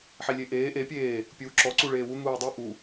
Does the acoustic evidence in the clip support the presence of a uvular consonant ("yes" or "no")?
no